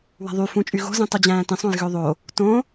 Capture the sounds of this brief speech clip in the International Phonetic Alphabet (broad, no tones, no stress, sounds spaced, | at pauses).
w æ̤ ðˤ y f ũ t͡ʃʼ y ɣ o̤ z ĩ tˤ u d͡ʑ æ̃ː t ĩ sˤ õ j ɣ ø ðˤ o | t õ